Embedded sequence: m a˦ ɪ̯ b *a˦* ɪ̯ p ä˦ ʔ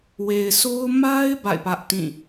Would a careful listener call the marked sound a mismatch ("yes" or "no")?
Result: yes